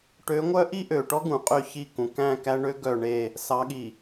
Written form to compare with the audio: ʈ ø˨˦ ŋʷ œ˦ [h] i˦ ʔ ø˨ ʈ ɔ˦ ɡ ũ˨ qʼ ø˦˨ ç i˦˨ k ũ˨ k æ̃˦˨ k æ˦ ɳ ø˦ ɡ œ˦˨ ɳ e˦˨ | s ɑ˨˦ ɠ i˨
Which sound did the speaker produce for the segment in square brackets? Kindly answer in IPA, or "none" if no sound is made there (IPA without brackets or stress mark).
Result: ʔ